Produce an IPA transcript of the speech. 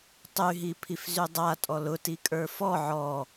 tˤyɦipʰifzy dˤatʼɔ lʊtikʼə˞ fɔ ʕɔ

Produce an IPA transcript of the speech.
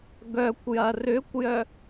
ɡœkʷjɐ rʏkʷjœ

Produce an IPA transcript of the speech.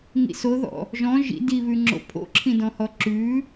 ŋḭsoðɔ̰ | ʒɔ̃ ʒḭ diβʉŋ͡ǁo̰ pʰo̰ǁʰĩdɔ̃hɔ ǁʉ

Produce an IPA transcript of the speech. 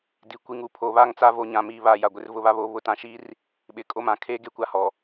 di˨ kʷi˨ŋu˦ pʰo˨βa˦˨ŋt͡sa˦vo˨ ɲã˨miː˨βa˨ ja˨ɡʷɪ˦r vʊ˦βa˦βoː˦βʊ˦ tã˨ʃiː˦r | ɓɪ˨kʼo˦˨ mã˨kʰeː˦ ɡe˨kʷa˨ hɔ˨

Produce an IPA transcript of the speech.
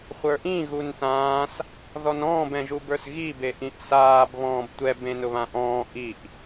χʷə˞ʔĩ ɣunθãːs | ðɔnɔ̃ːb ɛ̃ʒubə˞sɣi beʔĩʔsaːb βɔ̃ːbtʷɛ bẽnʊβãʔɔ̃ː ʔiʔ

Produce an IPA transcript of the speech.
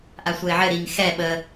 ʔasʷɛɪ̯ʕɘ ɾiŋ xɛ ɓə

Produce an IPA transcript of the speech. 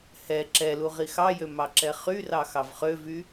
hɛ ǁɛlu ʁixɑjø mɑǁɛχyrɑ xɑvχøvy

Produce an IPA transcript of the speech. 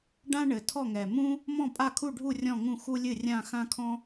ɖã˥ɳɘ˨˩tʰɔ˥˨ŋɛ˨˩ mũ˥ | mɔ̃˥˨pʼa˥˨kʰu˥˨ɖʱu˥˨ rʲɔ̃˥˨ŋũ˥˨xu˥lʲɨ˥˨ rʲã˥˨ xã˥kʰɔ̃˥

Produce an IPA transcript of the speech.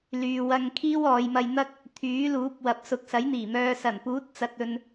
lyː˨wɐ˧ŋ kʰiː˥wɔː˨˧jmɐ˧jn̪ɐ˥k̚ | t̪ʰyː˨˥luː˨˥p̚ wɐ˨p̚sʊ˨k̚sɐ˨˥jn̪iː˨˩ mœː˨sɐ˨˩npuː˨˥t̚ t͡sɐ˧t̚ɵ˧n

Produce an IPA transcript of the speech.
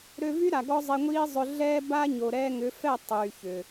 ɾø˧vy˦ ɾa˨ɡɔ˦zˤe˧ŋʷiː˦ zˤʏ˧ɮɛː˦ba˦ ɲo˨ɾɛː˧ŋʏ˨˦ fɛ˦˨ tˤyː˨çʏ˨

